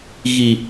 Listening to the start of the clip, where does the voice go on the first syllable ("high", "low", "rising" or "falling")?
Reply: low